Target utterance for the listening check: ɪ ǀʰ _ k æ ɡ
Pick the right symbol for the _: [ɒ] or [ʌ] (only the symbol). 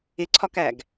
ɒ